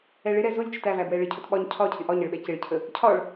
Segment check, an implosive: present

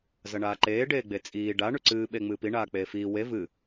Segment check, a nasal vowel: absent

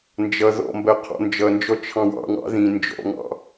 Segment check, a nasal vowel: present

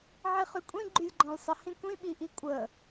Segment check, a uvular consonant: present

